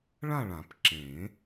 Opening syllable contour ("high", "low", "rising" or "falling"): falling